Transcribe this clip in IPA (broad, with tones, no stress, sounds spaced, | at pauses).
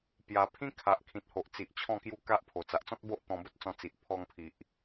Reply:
p j a˨˩ pʰ ĩ˦ kʰ a˨ ʔ kʰ ĩ˨ t̚ h o˨ ʔ t͡s i˨ ʔ t͡ɕʰ ɔ̃˥˧ k j u˦ k a˦ ʔ pʰ o˨˩ t͡s a˨ ʔ t͡s ɔ̃˦ t̚ b o˦ ʔ t̪ ɔ̃˧ b ə˦ t̚ t͡s ɔ̃˧ t͡s i˨ ʔ pʰ ɔ˧ ŋ pʰ i˨ ʔ